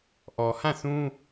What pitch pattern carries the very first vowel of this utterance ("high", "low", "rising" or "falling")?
low